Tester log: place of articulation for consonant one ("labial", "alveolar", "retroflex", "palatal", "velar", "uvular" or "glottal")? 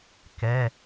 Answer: velar